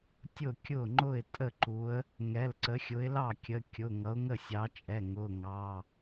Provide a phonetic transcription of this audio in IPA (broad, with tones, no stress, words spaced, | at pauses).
tʲʊ˥˩kʲʊ˥˩ ŋ͡ǃʊ˥˩ɪ̯tʼə˥˩ǃu˨˦ə̯ | ŋɛ˩˧˩lǀə˨˦xʲʊ˨˦ɪ̯lɑ˥˩ kʲə˩˧˩kʲʊ˩˧˩ ŋʌ˨˦ʊ̯ŋə˥˩sʲɑ˨˦t͡ʃʼɛ˩˧˩ ŋʊ˩˧˩ŋɑ˩˧˩